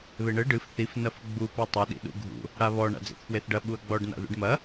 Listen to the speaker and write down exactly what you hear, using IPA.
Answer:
β e ɳ ɘ ɖ ɨ f θ i f n ɐ f ɡ͡b u p ɛ tˤ ɘ ɗ ḭ ɗ ṵ ɡʱ ṵ | ɽ a β ɔ ɳ a̰ d͡z ḛ θ f w e θ ɖ ɐ ɓ u ɐ̯ ɡ͡b ɔ ɖ n a̰ ð ṵ ɖ m ɐ

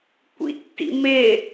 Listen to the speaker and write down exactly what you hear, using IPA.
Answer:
kʷ ḭ tː ḭ m e

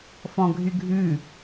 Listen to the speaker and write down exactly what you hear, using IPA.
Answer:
f ɔ̃ ɡʱ y ɡʱ ʉ

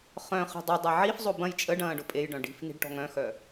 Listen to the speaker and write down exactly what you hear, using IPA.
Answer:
χ œ̃ χ i̤ dˤ ə dˤ ɛ ʕ i f zˤ o b ɐ̃ j t͡ʃʼ ə ɖ ɐ̃ː ɖ ʊ pʼ e j ɖ œ̃ ɖ i̤ f n i̤ ɖ ʈ ɔ̤ ŋ œ̃ x œ

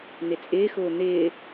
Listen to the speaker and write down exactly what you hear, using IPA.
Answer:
n̪ ɪ t͡sʼ ɪː x ʊː n̪ ɪː

